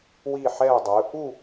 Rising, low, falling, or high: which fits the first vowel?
falling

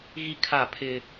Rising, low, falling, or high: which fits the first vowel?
high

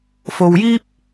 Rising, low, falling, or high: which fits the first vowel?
low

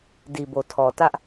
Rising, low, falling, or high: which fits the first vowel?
low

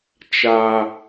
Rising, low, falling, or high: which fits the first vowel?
low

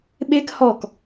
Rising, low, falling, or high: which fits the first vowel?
high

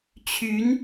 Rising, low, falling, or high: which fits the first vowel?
rising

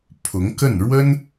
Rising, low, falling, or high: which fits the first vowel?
rising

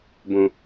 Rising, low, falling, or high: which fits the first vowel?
low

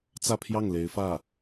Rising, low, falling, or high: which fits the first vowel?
falling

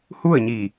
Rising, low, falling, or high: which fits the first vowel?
falling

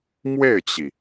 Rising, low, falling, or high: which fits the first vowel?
falling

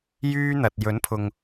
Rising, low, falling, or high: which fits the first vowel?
high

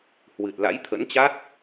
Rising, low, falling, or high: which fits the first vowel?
low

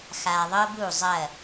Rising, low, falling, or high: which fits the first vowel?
low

